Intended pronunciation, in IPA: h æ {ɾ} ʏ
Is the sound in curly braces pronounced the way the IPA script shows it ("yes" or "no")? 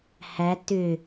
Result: no